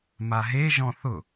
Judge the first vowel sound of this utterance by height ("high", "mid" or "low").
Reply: low